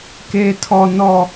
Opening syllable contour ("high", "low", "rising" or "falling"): high